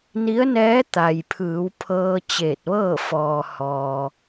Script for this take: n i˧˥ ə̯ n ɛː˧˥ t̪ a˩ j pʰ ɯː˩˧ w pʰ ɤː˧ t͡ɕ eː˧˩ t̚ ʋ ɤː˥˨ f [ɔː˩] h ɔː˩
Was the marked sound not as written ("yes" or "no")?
no